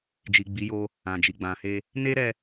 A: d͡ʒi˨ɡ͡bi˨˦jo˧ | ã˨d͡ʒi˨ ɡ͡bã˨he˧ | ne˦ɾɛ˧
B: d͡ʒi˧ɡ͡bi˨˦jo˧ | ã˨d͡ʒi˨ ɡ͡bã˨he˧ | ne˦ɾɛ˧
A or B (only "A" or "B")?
A